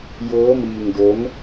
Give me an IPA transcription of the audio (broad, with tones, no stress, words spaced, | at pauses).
jɤː˦˥miː˧ŋ do˦˥n